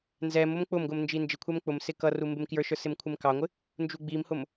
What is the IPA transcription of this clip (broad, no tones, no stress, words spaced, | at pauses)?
nzɛm ʊmk͡pʊmɡʊm nd͡ʒind͡ʒɪkʷʰɛm k͡pʊmsɪ kʌru mbɪmkjə˞ʃə˞ sɪmkʷʰɪmkɑŋʷɪ | nd͡ʒuɡ͡bimhʊm